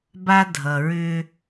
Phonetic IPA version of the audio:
b a˦ dʱ ʌ˨ ɹ ʏ˦

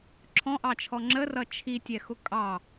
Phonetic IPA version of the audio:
ǁʰ ɔ̃ ʔ ɑ t͡ʃʰ ɔ ŋ͡ǁ ə r ʌ t͡ʃʰ i tʲ ɛ x ʊ kʼ ɑ

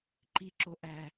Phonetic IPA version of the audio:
ǃ i ǁ o ʔ æ

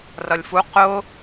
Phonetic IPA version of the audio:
r ʌ lʲ f u q ʊ

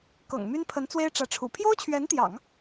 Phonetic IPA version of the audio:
k ɤ̰˨˩ ŋ m y˥ n pʰ ə˧˥ n t͡s w e˥ ɪ̯ ʈ͡ʂ ä˧˥ ʈ͡ʂʰ ṵ˨˩ pʰ j o˥ ʊ̯ t͡ɕʰ ɥ ɛ˧˥ n t̪ j ɑ̰˨˩˦ ŋ

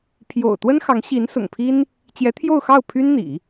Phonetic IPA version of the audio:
pʰ j o̰˨˩ ʊ̯ t̪ w ə˥ n x ɑ˧˥ ŋ ɕ i˧˥ n s ʊ̰˨˩ ŋ pʰ i˥ n | t͡ɕ j ɛ˧˥ t̪ʰ j o˥˧ ʊ̯ x ɑ˥˩ ʊ̯ pʰ y˥ n n̪ ḭ˨˩˦

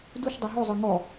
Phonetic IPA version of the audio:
d u ʃ dˤ u ɦ o zˤ ə˞ ŋ ɔ

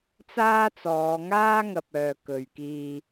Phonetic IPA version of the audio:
t͡s aː˥ t͡s ɔː˨˧ ŋ aː˥ ŋ ɐ˨ p̚ œː˨ k ɵ˨ ɥ k iː˧

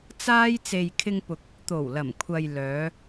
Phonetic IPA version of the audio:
t͡s aː˥ j t͡s e˨ j kʰ ɪ˧ ŋ p ʊ˨ k̚ | t̪ o˨˩ w l ɐ˨˩ m kʷʰ ɐ˨ j l œː˨˧

